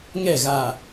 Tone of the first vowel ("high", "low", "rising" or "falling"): falling